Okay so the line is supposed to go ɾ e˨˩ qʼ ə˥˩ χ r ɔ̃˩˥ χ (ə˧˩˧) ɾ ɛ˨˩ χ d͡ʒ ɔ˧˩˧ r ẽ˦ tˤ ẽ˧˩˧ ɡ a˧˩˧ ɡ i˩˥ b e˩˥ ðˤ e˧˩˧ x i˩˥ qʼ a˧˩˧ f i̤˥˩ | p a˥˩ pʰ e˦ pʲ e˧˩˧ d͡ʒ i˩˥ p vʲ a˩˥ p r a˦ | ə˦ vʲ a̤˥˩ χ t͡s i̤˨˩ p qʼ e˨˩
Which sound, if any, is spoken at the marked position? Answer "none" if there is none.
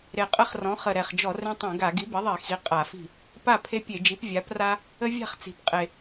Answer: ə˨˩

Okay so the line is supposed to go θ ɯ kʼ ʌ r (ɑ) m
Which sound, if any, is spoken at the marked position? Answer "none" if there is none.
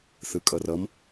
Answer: ʌ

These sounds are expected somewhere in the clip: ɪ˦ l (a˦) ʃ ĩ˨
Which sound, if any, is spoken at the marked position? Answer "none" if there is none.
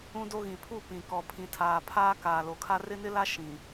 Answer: a˦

